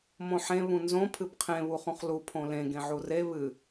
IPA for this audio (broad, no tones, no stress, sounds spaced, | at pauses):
m õ ħ ẽ β ũ n z õ pʰ ɨ b qʰ ẽ β u χ ũ χ l u pʰ õ l ẽ ɡ ẽ ʕ u r e β ɨ